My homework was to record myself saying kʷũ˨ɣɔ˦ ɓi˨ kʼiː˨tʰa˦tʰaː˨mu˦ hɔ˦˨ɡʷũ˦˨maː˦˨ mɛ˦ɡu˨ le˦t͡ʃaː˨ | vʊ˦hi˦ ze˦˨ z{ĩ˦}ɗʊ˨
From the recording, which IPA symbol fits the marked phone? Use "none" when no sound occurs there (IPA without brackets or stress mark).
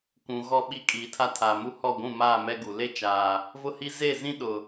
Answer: ĩ˦